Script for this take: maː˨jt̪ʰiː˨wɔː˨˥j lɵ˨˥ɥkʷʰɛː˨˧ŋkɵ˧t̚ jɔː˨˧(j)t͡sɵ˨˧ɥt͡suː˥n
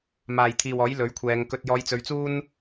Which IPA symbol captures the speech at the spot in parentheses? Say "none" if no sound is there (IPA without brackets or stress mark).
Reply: j